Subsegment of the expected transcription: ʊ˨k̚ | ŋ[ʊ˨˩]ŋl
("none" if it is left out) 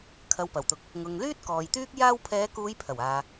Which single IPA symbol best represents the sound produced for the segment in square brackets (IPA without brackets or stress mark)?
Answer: ʊ˨